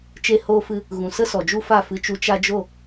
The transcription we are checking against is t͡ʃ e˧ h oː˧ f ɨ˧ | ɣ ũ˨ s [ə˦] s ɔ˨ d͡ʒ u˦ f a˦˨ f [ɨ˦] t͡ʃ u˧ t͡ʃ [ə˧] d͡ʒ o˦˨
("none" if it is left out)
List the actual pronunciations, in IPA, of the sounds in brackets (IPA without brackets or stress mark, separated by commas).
ə˦, ɨ˧, a˧